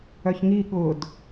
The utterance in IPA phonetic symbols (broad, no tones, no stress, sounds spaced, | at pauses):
œ ç ŋ i ɠ ʊ d